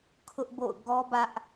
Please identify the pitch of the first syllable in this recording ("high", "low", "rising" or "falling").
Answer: high